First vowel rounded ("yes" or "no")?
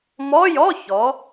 yes